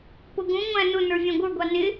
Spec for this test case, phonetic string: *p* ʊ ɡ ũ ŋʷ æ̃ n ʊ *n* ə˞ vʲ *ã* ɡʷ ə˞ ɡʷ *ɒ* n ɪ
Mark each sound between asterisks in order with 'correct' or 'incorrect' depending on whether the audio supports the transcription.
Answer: correct, correct, incorrect, incorrect

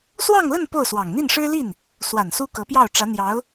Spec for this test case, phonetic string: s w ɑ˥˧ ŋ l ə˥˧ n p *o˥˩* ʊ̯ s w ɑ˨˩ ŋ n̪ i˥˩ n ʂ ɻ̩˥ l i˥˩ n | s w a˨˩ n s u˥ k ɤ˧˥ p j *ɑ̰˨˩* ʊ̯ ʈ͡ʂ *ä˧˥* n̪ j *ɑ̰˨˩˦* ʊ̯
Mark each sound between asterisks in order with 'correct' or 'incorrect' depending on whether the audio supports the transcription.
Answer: correct, incorrect, correct, incorrect

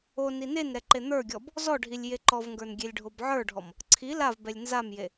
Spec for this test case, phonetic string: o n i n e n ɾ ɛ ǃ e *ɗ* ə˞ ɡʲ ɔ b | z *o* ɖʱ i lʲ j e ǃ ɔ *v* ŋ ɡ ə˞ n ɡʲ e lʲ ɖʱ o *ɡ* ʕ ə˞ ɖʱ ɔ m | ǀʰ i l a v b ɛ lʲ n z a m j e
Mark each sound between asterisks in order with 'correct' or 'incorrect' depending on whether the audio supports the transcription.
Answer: incorrect, incorrect, correct, incorrect

